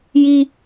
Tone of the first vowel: high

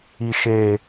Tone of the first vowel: low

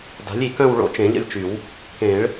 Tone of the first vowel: rising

